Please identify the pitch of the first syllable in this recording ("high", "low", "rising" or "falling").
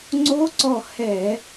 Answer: rising